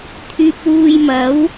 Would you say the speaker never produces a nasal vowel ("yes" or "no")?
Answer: yes